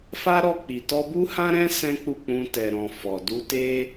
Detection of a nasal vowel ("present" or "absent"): present